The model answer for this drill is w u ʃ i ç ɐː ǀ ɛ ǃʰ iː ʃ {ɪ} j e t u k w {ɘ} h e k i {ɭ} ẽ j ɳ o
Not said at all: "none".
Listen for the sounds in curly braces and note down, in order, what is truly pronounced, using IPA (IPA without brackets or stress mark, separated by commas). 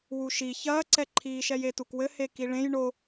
ɛ, ɘ, ɭ